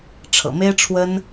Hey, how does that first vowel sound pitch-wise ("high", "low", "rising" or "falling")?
low